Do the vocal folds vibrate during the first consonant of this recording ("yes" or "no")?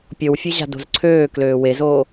no